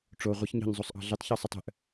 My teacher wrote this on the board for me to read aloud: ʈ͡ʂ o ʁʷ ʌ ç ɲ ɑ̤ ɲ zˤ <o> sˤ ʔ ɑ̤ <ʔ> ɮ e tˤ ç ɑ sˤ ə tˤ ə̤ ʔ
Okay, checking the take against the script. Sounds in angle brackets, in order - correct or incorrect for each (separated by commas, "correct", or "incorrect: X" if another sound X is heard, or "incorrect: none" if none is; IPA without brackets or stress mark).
correct, incorrect: none